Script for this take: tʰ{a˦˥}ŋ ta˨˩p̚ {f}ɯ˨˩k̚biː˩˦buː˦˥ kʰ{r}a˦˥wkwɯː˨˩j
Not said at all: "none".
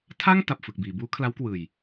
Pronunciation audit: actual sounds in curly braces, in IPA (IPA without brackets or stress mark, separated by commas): a˥˩, f, l